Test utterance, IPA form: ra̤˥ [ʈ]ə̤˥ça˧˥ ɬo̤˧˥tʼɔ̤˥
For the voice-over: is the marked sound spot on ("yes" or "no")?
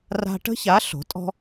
yes